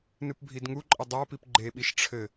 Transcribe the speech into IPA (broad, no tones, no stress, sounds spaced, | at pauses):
n ɨ p bʱ i d ŋ u ǃʼ ɘ dˤ a p i p ɡ͡ǃ e ɓ i ʃ ʈ͡ʂʰ ɘ